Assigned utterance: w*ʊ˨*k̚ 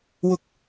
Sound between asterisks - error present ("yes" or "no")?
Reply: yes